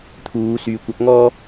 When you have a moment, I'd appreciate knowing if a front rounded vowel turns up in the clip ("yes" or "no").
yes